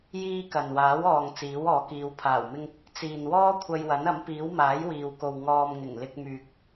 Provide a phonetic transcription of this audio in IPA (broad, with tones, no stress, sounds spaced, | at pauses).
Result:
j iː˥ k ɐ˨ n w aː˨˥ w ɔː˨ ŋ t͡s iː˨˥ w ɔː˨˧ k iː˨˧ w pʰ aː˨˩ w m ɪ˧ ŋ | t͡s iː˨ n w ɔː˥ kʷʰ ɐ˧ j w ɐ˨˥ n ɐ˨˥ m p iː˨˥ w m aː˨˥ j w iː˨ w k o˨ w ŋ ɔː˨ m ŋ ɪ˨˩ ŋ l ɪ˧ k̚ m yː˨ k̚